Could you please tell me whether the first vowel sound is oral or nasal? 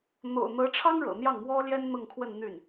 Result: oral